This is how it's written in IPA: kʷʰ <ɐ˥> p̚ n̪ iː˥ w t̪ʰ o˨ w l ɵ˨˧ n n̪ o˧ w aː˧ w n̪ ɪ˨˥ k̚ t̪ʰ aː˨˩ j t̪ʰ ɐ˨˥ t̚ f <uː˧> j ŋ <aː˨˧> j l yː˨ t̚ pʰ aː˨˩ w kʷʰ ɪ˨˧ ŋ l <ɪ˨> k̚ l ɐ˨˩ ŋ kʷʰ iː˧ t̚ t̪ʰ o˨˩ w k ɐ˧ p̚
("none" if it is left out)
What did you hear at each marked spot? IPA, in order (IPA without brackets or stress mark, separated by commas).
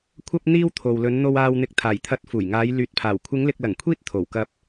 ɐ˥, uː˨˩, aː˨˧, ɪ˨